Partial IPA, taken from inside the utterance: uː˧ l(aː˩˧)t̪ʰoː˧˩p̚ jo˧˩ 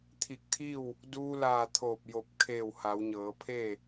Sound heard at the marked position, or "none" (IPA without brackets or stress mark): aː˧˩